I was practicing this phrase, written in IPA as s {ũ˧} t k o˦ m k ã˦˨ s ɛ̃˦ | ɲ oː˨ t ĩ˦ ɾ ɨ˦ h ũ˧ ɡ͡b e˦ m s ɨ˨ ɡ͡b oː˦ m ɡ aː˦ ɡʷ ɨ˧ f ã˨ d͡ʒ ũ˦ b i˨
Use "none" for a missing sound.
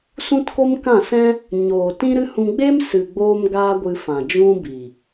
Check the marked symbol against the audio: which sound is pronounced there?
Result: ũ˦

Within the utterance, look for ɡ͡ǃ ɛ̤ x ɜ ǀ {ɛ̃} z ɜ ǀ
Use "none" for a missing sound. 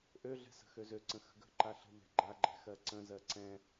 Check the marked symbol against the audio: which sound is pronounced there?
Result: ə̃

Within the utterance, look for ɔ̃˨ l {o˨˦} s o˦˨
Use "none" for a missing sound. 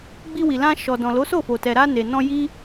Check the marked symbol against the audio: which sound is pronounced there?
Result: o˨˦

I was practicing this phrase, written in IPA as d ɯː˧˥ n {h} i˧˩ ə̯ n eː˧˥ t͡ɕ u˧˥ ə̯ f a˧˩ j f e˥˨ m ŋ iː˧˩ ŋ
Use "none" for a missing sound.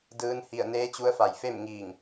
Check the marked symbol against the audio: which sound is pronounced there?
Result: h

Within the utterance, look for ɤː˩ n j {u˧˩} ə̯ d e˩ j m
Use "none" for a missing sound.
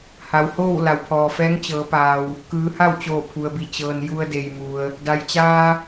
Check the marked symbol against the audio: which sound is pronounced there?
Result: u˧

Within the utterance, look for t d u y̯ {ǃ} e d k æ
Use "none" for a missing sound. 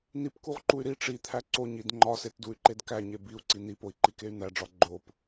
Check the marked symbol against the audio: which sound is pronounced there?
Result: ǃ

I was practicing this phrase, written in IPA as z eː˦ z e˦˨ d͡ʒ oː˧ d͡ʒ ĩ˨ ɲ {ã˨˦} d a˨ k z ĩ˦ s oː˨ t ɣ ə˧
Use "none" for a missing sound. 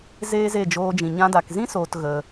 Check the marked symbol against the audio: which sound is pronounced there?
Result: ã˧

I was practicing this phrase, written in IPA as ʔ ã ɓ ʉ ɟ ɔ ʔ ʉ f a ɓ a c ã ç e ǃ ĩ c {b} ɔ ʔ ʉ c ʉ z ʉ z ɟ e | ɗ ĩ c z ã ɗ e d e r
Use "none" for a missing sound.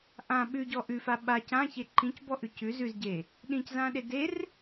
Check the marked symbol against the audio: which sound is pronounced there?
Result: b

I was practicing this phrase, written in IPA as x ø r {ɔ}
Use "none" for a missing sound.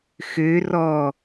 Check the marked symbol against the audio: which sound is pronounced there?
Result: ɔ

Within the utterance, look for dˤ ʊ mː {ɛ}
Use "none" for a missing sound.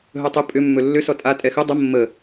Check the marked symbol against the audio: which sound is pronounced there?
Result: ə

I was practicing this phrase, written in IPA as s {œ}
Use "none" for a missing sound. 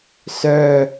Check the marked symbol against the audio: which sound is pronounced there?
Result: œ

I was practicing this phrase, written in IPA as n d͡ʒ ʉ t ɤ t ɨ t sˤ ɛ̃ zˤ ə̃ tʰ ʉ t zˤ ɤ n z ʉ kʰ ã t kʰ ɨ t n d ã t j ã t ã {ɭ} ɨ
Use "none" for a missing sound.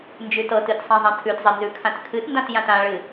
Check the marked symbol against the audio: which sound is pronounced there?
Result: ɭ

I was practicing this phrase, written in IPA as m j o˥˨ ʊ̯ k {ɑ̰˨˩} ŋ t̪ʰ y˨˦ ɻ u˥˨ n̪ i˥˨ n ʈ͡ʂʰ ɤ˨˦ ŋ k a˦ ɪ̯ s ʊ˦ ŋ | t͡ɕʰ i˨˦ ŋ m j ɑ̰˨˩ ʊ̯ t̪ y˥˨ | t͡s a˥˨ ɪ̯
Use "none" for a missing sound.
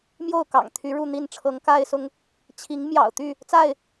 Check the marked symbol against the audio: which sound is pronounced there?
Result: ɑ̰˨˩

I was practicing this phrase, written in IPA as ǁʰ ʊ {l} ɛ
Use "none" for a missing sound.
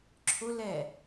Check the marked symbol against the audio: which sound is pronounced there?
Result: l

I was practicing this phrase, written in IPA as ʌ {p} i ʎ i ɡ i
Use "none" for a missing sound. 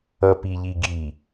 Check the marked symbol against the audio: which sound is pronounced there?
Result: p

